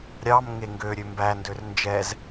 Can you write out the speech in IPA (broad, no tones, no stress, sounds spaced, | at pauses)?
ɾʲ ɑ m ŋ e ŋ ɡ ø ɾʲ ø m b æ n d ø r n d͡ʒ ɛ z